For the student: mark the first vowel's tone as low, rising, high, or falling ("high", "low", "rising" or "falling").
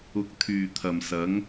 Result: rising